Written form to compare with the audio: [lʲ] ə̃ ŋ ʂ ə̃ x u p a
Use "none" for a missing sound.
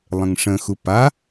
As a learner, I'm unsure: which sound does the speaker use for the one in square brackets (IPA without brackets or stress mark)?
lˠ